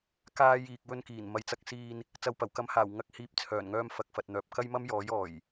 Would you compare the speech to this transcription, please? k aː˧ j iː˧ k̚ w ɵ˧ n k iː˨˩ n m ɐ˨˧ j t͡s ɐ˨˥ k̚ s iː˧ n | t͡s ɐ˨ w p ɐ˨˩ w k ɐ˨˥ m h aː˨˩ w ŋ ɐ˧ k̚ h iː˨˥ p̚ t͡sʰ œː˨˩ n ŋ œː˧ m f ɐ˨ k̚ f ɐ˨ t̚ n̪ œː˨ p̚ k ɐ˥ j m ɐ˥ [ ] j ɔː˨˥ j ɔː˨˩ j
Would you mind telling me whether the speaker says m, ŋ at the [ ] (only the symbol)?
m